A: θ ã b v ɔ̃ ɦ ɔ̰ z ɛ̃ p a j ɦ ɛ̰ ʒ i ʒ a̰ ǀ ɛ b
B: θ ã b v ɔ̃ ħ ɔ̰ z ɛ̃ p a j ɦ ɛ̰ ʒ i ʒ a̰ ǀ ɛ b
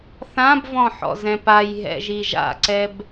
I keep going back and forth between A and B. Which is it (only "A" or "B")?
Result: B